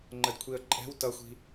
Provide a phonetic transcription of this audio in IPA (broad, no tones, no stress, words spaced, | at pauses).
ŋ͡ǃədkʷʰiə̯ǃʼɛ̤w tʌxʷi̤